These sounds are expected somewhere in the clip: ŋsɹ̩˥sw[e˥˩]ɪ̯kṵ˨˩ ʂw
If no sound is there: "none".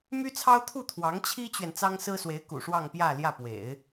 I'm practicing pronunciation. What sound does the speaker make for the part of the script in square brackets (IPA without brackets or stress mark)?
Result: e˧˥